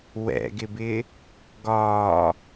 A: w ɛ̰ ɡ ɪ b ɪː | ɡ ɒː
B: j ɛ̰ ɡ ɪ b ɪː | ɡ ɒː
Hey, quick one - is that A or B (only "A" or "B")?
A